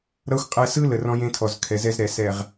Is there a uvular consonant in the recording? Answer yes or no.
yes